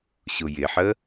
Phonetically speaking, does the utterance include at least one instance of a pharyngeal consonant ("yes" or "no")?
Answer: yes